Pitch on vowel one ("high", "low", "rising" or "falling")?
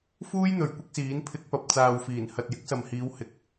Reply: high